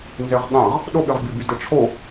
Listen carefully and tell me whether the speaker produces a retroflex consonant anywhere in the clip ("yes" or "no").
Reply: yes